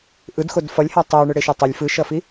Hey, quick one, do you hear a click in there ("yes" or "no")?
no